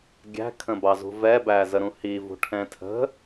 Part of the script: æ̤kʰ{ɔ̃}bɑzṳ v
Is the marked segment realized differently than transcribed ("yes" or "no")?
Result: yes